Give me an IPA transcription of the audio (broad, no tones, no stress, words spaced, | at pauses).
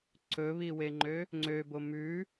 ǀɵβiweŋ͡ǃø | ŋ͡ǀøbo mʉ